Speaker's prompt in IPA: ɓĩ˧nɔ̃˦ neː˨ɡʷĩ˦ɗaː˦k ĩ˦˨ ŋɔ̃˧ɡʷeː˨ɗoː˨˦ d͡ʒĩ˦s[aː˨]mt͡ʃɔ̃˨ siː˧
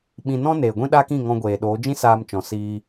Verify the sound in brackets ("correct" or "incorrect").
incorrect